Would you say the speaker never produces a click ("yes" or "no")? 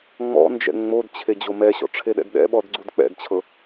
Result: no